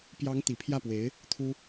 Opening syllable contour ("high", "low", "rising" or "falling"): rising